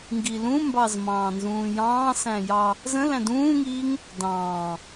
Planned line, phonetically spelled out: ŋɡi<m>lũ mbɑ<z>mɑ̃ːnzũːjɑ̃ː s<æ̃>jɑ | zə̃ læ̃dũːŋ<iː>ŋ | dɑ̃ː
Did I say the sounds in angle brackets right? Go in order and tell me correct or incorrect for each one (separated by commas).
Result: incorrect, correct, correct, correct